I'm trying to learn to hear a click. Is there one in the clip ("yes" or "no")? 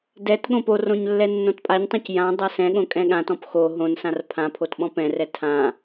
no